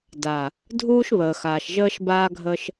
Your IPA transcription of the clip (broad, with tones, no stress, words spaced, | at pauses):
da˨ | dʱuː˦ʃβəː˨xaː˨ʃ ʒəː˦ʃ baː˦ɡʱə˦ʃ